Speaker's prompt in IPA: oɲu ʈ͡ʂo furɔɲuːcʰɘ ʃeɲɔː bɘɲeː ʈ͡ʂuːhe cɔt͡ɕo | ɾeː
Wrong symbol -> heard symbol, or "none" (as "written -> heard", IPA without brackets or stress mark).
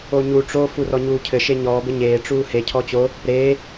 c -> cʰ